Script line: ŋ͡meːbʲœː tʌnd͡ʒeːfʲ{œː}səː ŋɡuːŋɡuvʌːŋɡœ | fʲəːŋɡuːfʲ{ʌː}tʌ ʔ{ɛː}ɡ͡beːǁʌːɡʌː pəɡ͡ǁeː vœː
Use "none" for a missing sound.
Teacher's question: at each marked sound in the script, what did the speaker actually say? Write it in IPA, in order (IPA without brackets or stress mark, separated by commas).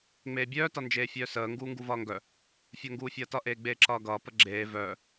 œː, ʌː, eː